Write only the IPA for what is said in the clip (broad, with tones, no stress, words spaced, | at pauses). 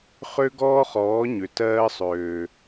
χø˦ɡɔː˦χɔː˨˦ ɲø˨ tɜː˦sˤøː˨